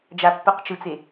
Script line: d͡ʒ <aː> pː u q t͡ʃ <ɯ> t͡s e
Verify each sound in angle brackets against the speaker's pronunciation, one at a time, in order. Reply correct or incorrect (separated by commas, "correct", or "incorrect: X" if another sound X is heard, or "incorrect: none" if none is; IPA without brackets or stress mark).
incorrect: a, correct